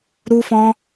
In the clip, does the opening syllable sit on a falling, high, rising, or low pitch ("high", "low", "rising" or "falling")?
high